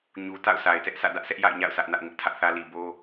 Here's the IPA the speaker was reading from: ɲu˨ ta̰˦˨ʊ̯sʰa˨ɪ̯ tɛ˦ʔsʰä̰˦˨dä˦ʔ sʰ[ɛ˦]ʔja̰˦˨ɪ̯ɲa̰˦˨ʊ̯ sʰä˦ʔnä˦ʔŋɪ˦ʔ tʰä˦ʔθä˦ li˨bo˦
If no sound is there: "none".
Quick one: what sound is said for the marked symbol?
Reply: ɛ˦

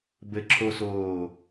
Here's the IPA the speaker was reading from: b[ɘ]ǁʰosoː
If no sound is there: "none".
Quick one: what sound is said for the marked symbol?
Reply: ɘ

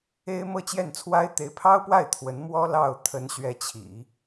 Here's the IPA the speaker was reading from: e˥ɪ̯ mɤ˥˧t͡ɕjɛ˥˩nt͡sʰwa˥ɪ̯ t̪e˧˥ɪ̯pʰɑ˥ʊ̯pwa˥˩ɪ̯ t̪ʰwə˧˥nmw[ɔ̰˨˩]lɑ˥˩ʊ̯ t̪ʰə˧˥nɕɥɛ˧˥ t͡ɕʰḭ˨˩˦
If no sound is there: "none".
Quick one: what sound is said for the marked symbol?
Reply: ɔ˥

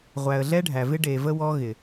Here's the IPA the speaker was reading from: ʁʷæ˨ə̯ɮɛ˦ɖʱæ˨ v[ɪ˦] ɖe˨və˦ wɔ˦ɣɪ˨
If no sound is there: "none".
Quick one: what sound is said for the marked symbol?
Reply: ɪ˦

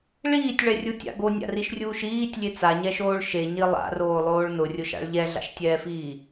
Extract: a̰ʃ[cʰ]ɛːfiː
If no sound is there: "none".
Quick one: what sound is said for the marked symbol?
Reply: tʲ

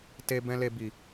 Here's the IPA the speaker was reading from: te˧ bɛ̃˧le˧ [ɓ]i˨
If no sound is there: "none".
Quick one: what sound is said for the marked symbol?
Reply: b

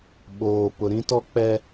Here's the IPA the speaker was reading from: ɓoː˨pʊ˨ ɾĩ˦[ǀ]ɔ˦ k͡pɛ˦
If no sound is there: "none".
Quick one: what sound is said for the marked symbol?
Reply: t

